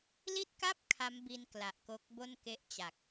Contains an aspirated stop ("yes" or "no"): yes